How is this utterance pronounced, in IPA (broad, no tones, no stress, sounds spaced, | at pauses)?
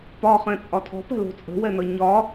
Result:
p ɒ χ ɛ̃ t͡sʼ ɒ tʰ ɔ̤ p ɛ̤ l o̤ t͡sʼ ə̤ w ɛ n ʌ ɲ ɒ